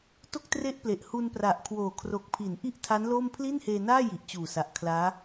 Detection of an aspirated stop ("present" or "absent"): present